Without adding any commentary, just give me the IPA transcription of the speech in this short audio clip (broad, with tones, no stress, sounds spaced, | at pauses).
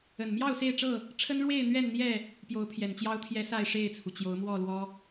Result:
ə˨˩ n m j ɑ˥˨ ʊ̯ s e˥˨ ɪ̯ ʈ͡ʂ ɤ˥˨ | ʈ͡ʂʰ ə˦ n ɻ w e˥˨ ɪ̯ n̪ ɥ ɛ˥˨ n n̪ j ɛ˥˨ | p j o˨˦ ʊ̯ pʰ j ɛ˨˩ n t͡ɕ j ɑ˦ ʊ̯ t̪ʰ j ɛ˦ s a˥˨ ɪ̯ ʂ e˥˨ ɪ̯ t͡sʰ u˩ t͡ɕ j o˨˦ ʊ̯ m w ɔ˥˨ l w ɔ˦